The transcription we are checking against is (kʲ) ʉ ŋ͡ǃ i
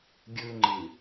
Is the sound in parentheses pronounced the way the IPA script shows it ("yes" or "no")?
no